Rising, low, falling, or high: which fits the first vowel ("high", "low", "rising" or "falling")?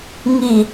low